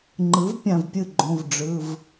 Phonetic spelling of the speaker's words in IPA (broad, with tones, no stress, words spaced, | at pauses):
ŋ͡ǃɯ˩˥v pʲã˧˩vpʲɯ˥˩ɡ͡ǃõ˩˧˩v ɖ͡ʐɯ˩˧˩v